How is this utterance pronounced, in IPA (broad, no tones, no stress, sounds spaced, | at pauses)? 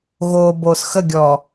ɣ o b o s x ə ɡʲ ɔ